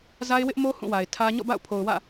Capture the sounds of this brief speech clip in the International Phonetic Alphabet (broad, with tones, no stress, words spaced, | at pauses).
za˦ɪ̯wɪ˦ʔmo˦ hũ˦˨wa˨ɪ̯ tʰä˦ ɲɔ̰˦˨ba̰˦˨ʊ̯pʰo˨ʊ̯ wä̰˦˨